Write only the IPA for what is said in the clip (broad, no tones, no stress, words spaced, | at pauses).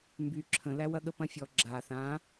mby ǁʰə̃læwɐɠə pɐ̃fʲɔ ɡ͡ǁa θã